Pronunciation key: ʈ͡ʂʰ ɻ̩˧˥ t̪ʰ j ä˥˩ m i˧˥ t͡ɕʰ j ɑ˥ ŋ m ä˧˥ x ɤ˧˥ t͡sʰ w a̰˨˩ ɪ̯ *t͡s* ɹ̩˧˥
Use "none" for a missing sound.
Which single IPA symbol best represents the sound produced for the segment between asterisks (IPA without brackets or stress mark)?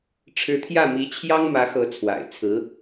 t͡sʰ